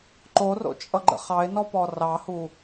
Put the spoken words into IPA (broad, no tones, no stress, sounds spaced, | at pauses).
ǃ o r o̰ t͡ʃʼ ʌ ɡ͡ǃ ə̰ χ ɑ ɪ̯ n ɔ p ɔ r ɑ h u